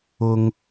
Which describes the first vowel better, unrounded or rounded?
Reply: rounded